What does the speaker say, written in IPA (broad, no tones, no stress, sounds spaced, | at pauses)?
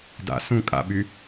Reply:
d a̰ s ũ kʼ a̰ ɓ y